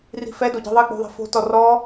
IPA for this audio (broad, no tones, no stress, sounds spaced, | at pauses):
r i̤ f ɛ d o ɟ i̤ ðˤ e ɡ͡b o̤ ðˤ e̤ f o̤ t ɔ r ɔ